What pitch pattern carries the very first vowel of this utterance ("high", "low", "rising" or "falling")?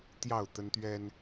falling